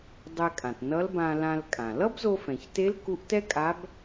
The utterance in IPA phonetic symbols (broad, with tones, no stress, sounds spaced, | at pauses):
dˤ ɛ˧ kʼ ã˩ t n ʌ˧˥ l b ã˧ l ã˧ l kʼ ã˩ l ʌ˥ b z o˧ f ɛ̃˩ ç t e˧˥ l k u˧˥ ʔ t ɛ˥ kʼ a˧˥ b